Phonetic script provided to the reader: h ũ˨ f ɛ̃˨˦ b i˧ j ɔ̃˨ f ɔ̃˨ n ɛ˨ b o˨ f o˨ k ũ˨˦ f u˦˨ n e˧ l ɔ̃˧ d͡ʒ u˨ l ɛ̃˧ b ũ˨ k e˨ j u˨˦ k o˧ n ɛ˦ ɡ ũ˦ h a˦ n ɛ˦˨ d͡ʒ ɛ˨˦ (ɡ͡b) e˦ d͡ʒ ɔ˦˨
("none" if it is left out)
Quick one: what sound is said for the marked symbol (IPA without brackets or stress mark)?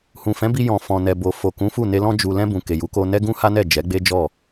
ɡ͡b